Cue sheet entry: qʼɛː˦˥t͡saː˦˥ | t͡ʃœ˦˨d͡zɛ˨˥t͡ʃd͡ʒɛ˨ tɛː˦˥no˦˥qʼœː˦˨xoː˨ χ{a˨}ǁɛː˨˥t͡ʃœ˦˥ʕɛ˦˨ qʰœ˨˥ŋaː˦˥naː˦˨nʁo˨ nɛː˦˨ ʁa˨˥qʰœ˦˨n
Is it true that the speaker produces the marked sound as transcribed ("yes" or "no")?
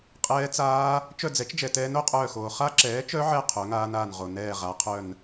no